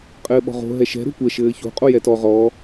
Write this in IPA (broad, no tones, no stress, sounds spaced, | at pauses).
qʼ ɘː ɓ ɔ̤ ʁ o̤ ɦ ɛ ʃ ɛ̤ ɾ o̤ kʷ ɛ ʃ ɘː ç o̤ qʼ o j ɛ t ɔ ʁ ɔ